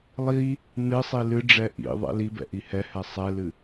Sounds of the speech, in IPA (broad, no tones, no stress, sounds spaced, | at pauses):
lˠ i | n ɨ sˤ i l ɨ ɖ͡ʐ ɛ ʔ ḭ ðˤ ɛ̰ l i b ɛ̰ ʔ i h ɛ h ɛ sˤ ɛ l ɨ